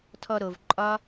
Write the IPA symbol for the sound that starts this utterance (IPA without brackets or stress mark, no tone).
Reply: tʰ